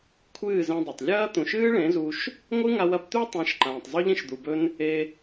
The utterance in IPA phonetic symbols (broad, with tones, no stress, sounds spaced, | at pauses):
kʷʰ ɨː˦˨ z ẽ˧ dˤ ɐ˨ tˤ lʲ ɐː˦ t̪ ũ˨ ʃ ɨː˦ ɭ ẽ˨˦ z u˧ ʃ | ŋʷ ɨ˦ ŋ a˧ w ɐ˧ b t̪ ʉ˦ tˤ ẽ˨˦ ʃ ǃ ãː˨ tˤ zˤ ɵ˦ ʎ ĩ˦ ʃ d̪ u˨ b ɵ˦ n | e˧